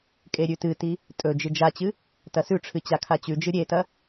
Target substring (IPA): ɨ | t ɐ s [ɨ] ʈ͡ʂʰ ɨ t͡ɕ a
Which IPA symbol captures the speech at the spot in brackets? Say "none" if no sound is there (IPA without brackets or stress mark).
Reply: ʉ